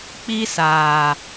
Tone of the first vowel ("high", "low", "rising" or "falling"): high